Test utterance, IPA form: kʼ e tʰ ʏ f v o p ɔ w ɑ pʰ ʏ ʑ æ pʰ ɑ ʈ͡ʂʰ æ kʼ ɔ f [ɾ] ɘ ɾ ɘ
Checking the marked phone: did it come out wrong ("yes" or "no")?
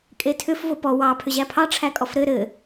no